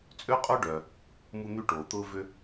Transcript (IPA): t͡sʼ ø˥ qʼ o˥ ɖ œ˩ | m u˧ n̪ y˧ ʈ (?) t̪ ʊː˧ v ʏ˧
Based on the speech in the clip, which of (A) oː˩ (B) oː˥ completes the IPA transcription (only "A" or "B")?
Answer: A